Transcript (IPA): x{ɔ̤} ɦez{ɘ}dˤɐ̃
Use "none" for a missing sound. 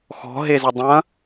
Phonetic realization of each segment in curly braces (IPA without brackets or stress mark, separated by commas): ɔ̤, ɘ